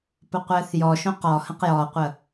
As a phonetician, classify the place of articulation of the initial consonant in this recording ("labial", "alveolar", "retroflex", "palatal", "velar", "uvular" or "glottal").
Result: labial